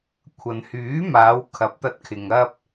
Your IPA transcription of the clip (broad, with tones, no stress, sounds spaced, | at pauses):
kʷʰ ɐ˨ n h yː˨˥ m aː˨˧ w kʰ ɐ˨˥ p̚ t̪ ɐ˧ t̚ kʰ ɪ˨ ŋ ɐ˧ p̚